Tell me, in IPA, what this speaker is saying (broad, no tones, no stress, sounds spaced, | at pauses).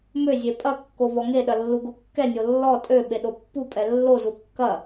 m ø zʲ e pʼ ɐ kː o v ɔ ŋ e ɗ ɐ lː u ɡ o kː ɛ nʲ o lː ɔ tʼ ø ɓ e ɗ o pː u pʼ ɛ lː o z u kː ɐ